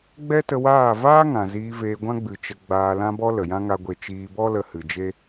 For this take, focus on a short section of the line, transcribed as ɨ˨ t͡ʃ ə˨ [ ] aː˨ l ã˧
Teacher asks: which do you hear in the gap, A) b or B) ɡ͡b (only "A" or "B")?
B